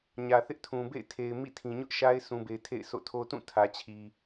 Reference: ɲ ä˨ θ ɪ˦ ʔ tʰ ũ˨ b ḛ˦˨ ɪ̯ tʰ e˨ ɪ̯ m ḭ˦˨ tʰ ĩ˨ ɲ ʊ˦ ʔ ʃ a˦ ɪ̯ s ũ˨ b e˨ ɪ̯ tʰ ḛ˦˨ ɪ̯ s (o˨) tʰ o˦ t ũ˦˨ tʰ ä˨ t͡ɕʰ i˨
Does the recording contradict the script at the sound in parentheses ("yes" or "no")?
yes